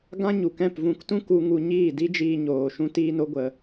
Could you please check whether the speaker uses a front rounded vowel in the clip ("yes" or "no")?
no